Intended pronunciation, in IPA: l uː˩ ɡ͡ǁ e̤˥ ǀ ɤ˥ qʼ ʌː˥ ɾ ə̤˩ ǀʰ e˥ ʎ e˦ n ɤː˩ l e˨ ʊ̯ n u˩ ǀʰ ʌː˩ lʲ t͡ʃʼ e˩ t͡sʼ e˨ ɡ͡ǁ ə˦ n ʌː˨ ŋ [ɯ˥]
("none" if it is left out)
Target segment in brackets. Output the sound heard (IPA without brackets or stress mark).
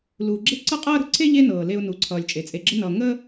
ə˥